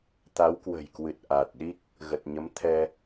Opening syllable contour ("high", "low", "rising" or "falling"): rising